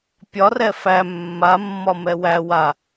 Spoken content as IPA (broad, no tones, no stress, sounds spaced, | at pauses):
pʲ ɒ r ɛ f æ mː a mː ɒ m ɛ w æ w a